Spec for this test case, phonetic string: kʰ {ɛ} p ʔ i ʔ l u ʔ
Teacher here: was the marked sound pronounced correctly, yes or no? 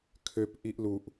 no